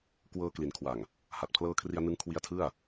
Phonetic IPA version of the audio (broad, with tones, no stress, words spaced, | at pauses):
kwɤː˧kli˩˦nkʰwa˨˩ŋ | ha˨˩t̚pʰlɤː˦˥kʰri˧a̯nɯ˦˥ŋ kʰwi˦˥a̯tʰɯ˥˩a̯